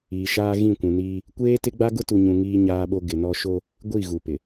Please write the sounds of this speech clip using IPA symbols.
iː˨ʃaː˦ ɣĩ˦˨kʷũ˨niː˦ | kʷeː˦tɪ˦ɡ͡ba˦ ɡʊ˦tu˨ɲũ˨ ŋiː˦ɲaː˦ɓo˦ ɡɪ˨nɔ˦ ʃo˦ | ɡʷi˦˨ ɣu˨pɪ˨

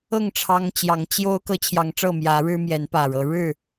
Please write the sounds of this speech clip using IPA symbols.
ɤ˥˨ŋ ʈ͡ʂʰɑ˦ŋt͡ɕjɑ˨˦ŋ t͡ɕjo˦ʊ̯ kɤ˦t͡ɕʰjɑ˨˦ŋʈ͡ʂɤ˥˨ mjä˨˦ ɻɻ̩˦mjɛ˨˦npä˨˩ɻɤ˨˦ ɻɻ̩˥˨

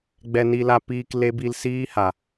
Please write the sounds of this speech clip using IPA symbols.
ɡ͡bɛ˧ni˧la˧piː˧k le˦ bi˧lsiː˦ha˨

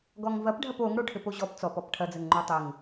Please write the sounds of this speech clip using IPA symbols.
ɡɔŋvɐpɖʱɐp oŋ ɽoʈʰɘpoʑɔp t͡sɔpɔp ʈʰɐd͡zɘŋŋ͡ǃo tˤɘŋ

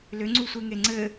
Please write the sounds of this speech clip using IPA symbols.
lʏŋ͡ǀusʷeŋe ŋ͡ǀɘ

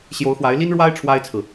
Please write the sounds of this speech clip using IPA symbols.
ɕjo˧˥ʊ̯xwa˧˥ɪ̯li˥nɻwa˥ɪ̯ ʈ͡ʂʰwa˥ɪ̯t͡sʰɹ̩˨

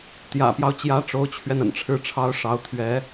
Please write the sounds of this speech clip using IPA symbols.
t̪jä̰˨˩pjɑ˦ʊ̯t͡ɕjä˧˥ ʈ͡ʂo˧˥ʊ̯t͡ɕʰɥɛ˧n ə̰˨˩nʈ͡ʂʰɻ̩˥˩ʈ͡ʂʰɑ˥ʊ̯ ʂɑ˧˥ʊ̯t̪ʰɥɛ˧˥

